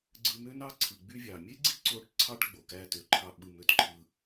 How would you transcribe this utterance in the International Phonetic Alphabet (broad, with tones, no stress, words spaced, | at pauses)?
ɡ͡ǀɯ˧mø˥nɑ˥ǀʰɯ˩ ɡ͡by˧vʲɑ˩mʲe˥ɡ͡ǀi˥ ǀo˧ʈ ǀʰɑ˥ʈɡ͡bo˩ kæ˥tø˩ǃʰɑ˥ ɓɯ˧m ø˧tǃʰɯ˧